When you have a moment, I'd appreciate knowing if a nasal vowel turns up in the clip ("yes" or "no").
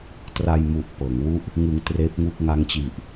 no